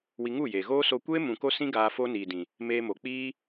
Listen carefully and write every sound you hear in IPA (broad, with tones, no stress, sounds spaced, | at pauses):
w i˧ ŋ u˦˨ j eː˨ ɣ oː˦ s o˧ kʷ eː˦ m ũ˨ k o˧ s ĩ˧ ɡ aː˧ f oː˦ n iː˨ d ĩ˨ | m eː˦ m o˧ k͡p iː˦